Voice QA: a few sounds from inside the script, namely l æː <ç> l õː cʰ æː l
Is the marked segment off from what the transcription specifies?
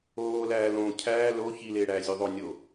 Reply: yes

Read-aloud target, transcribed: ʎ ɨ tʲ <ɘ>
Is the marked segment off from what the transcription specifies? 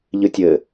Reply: no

